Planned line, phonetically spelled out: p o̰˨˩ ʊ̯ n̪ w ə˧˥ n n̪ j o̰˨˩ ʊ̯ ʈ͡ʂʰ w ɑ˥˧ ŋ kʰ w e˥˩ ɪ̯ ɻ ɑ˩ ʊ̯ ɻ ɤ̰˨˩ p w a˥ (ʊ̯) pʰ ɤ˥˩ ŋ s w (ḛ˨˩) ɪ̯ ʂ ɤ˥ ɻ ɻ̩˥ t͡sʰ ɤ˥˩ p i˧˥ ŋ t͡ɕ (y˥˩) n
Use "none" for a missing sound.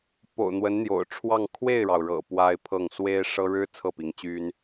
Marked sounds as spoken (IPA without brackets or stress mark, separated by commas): ɪ̯, e˥, y˥